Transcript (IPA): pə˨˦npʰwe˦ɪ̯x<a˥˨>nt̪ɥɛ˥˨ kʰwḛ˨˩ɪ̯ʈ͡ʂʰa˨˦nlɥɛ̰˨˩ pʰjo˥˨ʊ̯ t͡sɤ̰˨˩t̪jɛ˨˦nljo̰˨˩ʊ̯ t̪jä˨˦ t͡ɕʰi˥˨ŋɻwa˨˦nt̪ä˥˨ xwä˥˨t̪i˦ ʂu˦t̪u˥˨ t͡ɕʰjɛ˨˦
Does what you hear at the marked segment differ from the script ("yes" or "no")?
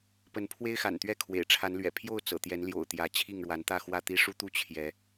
yes